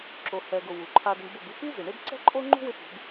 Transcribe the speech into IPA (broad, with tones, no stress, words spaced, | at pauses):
ǁo˨hɛ˨ɡʊ˨ wu˨ǃʰa˧dɪ˧ɳ bʊ˦˨bu˦ pi˦zɪ˨ɳɪ˦b ǀɛ̤˦ǃʼo˦ŋ͡ǃṳ˦wɪ˧ pṳ˨˦b